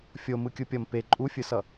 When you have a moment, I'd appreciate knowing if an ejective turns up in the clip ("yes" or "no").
yes